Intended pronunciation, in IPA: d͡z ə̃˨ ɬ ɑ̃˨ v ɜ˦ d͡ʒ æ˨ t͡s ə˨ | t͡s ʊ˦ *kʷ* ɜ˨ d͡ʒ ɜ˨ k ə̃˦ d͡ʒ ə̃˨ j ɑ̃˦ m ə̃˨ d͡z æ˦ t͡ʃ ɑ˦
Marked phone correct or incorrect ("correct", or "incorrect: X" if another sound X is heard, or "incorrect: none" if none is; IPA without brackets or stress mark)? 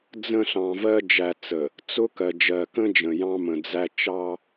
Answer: incorrect: k